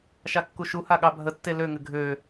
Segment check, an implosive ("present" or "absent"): present